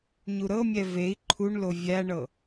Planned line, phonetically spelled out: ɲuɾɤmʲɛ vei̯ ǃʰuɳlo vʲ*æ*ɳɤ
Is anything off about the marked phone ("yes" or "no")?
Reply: no